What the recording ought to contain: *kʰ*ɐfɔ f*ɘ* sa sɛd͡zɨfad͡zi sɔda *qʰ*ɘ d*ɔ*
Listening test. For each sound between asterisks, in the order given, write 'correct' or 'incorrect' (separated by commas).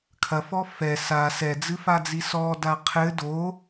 correct, incorrect, correct, incorrect